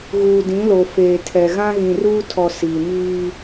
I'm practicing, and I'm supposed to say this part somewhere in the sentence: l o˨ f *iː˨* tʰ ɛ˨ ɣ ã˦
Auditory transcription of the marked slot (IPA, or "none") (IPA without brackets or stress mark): eː˨